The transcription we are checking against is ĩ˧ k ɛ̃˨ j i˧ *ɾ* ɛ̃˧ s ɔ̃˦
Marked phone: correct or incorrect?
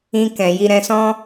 correct